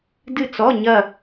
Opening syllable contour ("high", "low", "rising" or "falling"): falling